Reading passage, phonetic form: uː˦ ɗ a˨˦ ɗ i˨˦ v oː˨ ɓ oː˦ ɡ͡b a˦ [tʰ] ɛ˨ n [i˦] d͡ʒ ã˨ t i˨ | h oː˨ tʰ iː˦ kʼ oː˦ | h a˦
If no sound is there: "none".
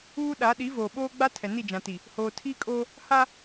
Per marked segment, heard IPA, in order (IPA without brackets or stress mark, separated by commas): tʰ, i˦˨